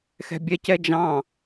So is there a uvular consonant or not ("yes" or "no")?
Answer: no